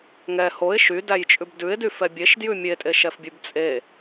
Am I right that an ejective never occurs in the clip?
no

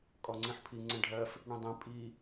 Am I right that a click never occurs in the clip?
no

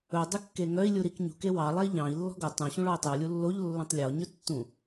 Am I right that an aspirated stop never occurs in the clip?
yes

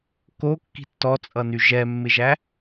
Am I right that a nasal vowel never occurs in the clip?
yes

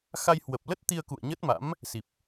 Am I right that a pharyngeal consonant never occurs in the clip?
yes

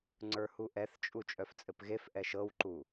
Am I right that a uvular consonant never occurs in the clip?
yes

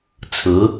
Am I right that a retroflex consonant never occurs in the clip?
yes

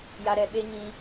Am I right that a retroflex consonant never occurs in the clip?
yes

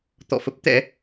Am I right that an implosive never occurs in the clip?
yes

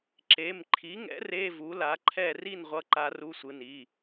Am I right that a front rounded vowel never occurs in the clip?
yes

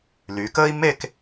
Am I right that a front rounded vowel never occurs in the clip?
no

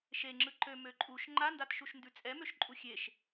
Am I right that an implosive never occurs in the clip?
yes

